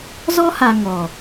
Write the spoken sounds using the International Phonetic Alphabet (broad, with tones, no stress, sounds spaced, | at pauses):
z ɔ˦ h a˨ ŋ ɔ˨